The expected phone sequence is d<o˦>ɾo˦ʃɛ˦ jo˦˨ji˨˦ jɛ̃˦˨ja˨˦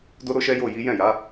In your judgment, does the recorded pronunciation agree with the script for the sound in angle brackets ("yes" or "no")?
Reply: yes